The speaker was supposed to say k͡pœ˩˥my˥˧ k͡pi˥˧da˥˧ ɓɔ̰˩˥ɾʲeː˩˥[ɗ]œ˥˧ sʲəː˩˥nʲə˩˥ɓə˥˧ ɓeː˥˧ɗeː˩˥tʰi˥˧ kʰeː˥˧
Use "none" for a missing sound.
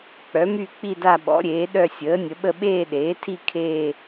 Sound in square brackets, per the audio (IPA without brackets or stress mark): ɗ